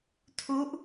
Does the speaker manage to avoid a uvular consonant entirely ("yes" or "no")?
yes